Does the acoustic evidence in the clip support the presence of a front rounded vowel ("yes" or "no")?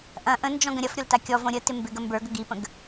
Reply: no